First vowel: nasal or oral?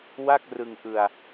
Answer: oral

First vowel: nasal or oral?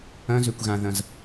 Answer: nasal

